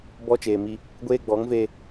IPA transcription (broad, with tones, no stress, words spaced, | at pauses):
bɔ˦t͡ʃeː˨mi˦ | ɡʷeː˦ɡ͡bɔ˨˦ŋveː˦